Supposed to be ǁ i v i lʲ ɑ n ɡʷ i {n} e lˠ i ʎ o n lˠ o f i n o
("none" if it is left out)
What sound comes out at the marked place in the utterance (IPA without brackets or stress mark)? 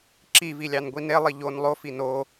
n